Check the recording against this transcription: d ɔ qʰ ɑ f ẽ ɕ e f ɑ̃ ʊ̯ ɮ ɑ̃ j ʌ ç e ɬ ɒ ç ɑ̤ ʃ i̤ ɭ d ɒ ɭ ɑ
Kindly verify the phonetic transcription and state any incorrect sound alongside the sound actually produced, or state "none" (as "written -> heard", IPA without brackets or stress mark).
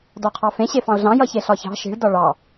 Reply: none